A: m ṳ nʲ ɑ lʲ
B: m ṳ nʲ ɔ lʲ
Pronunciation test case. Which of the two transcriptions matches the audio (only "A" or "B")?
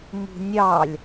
A